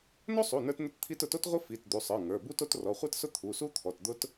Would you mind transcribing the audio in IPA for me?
n o˥ sˤ u˩˧˩ n ə˞˥ t n ʊ˥ t t̪ʰ i˥ t ʊ˩˧˩ t o˥ t ʁʷ i˥ f i˩˧˩ t d̪ u˩˧˩ sˤ ə˞˩˧˩ ŋ ə˞˩˧˩ b u˥ t o˥ t r ɔ˩˧˩ χʷ ə˞˥ t s ʊ˥ t̪ʰ u˩˧˩ s u˥ t̪ʰ ɔ˩˧˩ t d̪ ʊ˥ t

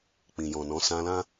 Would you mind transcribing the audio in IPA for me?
k͡p ĩ˨ j ɔ̃˨ n ɔ̃˨˦ s ã˧ l ã˦

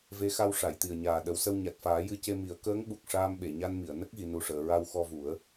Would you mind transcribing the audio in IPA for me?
v e˧˥ x a˧ w ʂ a˨˩˨ j t̪ i˨˩ ə̯ ɲ aː˨˩ ɗ ə˨˩˦ w s ə˧ w ɲ a˨˩ t̚ f aː˨˩˦ j ɨ˧ c e˧ m i˨˩˦ ə̯ k əː˧˥ ŋ ɓ u˨˩ k̚ ʂ aː˧ m ɓ e˨˩˨ ɲ a˧ n m i˨˩˨ ə̯ n ə˦˥ k̚ ɣ i˨˩˨ n u˨˩ ʂ əː˨˩˨ ɹ a˧ w x ɔ˧ v u˨˩˦ ə̯

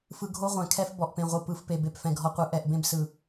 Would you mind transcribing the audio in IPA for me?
f ɯ˨ ɡʱ o˦ ʁʷ ɛ̃˨ kʰ ɛ˦ f b ɔ˨ ʔ p ẽ˨ ʁʷ ɯ˨ p ɯ˨ f p e˨ b e˨ p f ɛ̃˨ ɡʱ ɔ˨ qʷ ɯ˨˦ ʔ ɛ˨ ʔ b ẽ˦ b s ɯ˨

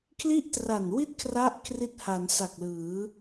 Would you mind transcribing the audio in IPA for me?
kʰ l i˥˩ ʔ t r a˨˩ n w i˥˩ t̚ kʰ r a˦˥ ʔ kʰ r i˦˥ t̚ h a˩˦ n s a˨˩ k̚ l ɯː˩˦

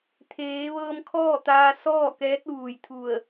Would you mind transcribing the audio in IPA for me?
t̪ʰ eː˩˧ ʋ ɤː˧ m kʰ ɔː˥˨ t̪ aː˧ s ɔː˥˨ k ɛː˧˥ t̚ ʋ uː˩ j t̪ʰ u˧˩ ə̯

